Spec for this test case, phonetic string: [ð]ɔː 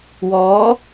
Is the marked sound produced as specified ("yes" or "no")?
no